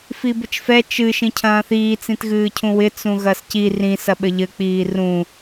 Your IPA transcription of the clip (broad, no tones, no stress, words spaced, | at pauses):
fibɘt͡ʃfɛ t͡ʃɨ ʃĩcʰɐ̃ːθiː t͡sĩtɣɨːcʰũwɪ t͡sũɣɐsci rĩ sɐɓɘʎɘ k͡piːrũ